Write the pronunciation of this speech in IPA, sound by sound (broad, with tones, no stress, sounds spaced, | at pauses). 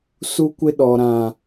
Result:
s u˦ kʷ ɪ˦ ɗ ɔ˨ ɾ ã˨